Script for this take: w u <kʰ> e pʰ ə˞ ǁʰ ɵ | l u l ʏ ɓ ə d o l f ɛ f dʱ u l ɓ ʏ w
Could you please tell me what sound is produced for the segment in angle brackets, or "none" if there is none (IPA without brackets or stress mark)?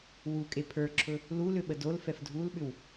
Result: kʼ